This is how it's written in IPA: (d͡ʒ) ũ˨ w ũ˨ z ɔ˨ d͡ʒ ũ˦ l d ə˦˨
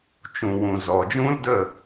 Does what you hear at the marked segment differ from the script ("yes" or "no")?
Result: yes